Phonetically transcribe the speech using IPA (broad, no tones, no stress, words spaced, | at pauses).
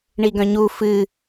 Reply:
ɳiɡœ̃ɲu fɨ